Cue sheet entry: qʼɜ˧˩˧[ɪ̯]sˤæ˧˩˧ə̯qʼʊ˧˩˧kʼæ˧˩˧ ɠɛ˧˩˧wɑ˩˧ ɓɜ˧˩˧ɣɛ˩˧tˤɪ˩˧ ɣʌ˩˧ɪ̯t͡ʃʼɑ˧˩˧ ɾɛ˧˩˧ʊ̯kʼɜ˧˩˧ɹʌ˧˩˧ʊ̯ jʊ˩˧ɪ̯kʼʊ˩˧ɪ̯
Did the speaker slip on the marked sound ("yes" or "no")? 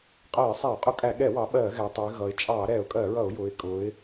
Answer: no